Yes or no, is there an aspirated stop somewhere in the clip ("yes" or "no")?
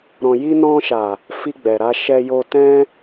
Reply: no